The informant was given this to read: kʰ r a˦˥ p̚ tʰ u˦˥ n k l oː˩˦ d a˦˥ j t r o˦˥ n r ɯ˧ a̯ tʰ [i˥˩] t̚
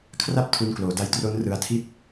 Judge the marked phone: correct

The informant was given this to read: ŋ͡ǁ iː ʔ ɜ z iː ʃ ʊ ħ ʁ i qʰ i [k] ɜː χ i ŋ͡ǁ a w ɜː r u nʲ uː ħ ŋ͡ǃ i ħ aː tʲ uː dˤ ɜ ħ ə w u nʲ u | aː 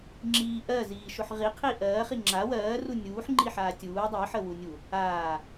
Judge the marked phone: incorrect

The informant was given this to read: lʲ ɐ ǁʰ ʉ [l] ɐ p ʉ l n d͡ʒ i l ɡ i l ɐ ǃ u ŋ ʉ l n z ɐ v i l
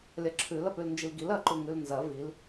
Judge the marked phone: correct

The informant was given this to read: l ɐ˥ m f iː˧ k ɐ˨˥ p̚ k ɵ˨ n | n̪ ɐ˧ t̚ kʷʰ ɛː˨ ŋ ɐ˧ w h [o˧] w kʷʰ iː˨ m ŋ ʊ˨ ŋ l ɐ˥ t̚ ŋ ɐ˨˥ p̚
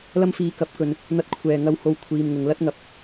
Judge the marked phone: correct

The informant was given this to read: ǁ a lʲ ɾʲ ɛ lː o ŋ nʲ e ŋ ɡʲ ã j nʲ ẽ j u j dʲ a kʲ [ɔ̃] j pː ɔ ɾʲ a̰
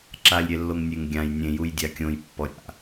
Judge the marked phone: incorrect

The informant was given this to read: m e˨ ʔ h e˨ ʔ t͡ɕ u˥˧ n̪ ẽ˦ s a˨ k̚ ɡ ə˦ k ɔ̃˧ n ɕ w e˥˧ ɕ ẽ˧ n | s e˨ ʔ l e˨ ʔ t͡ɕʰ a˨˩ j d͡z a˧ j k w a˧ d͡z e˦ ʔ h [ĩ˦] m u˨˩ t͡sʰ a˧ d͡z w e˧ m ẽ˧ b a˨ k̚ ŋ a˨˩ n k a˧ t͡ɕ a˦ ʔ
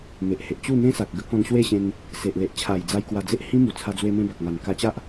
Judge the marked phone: correct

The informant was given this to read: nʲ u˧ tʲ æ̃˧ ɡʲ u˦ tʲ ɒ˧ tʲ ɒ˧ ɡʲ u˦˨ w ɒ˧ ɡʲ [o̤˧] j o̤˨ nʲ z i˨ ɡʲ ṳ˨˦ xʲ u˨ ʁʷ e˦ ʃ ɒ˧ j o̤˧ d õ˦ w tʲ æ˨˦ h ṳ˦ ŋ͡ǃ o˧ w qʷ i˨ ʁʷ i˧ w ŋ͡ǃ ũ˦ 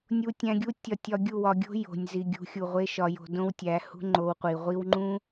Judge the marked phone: incorrect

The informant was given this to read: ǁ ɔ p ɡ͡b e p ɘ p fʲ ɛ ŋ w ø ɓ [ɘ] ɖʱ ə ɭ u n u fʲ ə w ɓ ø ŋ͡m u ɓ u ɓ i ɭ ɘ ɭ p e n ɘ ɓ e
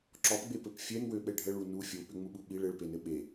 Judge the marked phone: incorrect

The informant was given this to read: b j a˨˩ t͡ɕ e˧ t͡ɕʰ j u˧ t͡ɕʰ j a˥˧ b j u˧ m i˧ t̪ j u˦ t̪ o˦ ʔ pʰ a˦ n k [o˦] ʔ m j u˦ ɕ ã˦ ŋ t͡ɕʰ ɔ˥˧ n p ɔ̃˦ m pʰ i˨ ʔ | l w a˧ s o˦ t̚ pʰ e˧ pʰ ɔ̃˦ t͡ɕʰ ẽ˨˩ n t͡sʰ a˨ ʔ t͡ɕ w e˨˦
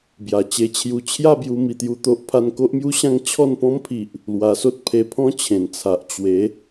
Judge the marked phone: correct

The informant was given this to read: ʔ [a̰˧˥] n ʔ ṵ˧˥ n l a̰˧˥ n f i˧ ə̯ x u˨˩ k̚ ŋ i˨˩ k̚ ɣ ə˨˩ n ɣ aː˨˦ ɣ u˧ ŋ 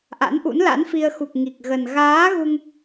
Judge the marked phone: correct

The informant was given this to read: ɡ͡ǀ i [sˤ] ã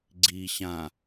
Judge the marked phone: incorrect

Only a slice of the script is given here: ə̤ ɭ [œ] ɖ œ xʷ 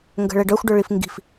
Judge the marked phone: incorrect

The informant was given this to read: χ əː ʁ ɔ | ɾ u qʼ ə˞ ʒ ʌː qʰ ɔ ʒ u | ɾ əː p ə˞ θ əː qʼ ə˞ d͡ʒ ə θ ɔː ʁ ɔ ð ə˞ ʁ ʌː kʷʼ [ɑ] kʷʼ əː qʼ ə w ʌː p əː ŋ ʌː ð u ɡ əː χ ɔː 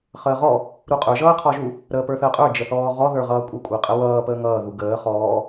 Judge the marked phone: incorrect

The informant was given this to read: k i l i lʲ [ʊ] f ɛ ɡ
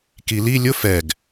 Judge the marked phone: correct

